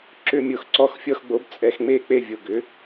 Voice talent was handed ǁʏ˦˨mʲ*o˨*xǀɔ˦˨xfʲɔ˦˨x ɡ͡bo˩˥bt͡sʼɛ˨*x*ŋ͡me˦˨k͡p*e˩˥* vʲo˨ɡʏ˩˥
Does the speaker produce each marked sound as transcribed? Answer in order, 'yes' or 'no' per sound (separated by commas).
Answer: yes, yes, no